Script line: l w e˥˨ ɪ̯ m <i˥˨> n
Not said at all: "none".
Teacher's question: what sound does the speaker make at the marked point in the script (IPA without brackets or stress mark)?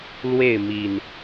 i˨˩